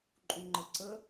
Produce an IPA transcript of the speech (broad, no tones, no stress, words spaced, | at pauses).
ǃʼũŋ͡ǃəǀə